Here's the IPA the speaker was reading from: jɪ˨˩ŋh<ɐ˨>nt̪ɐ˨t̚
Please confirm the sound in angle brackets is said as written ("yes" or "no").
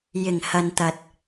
yes